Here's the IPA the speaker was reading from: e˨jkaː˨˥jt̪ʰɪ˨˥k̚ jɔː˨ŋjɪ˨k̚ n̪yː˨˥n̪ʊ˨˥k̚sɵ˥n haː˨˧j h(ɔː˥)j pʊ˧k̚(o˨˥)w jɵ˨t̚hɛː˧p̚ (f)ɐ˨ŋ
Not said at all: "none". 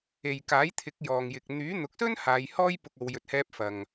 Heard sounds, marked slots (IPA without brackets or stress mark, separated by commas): ɔː˥, o˨˧, f